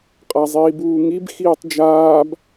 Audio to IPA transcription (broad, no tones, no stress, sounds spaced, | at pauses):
qʼ a zˤ iː b uː ŋ i b x iː tˤ d͡ʒ aː b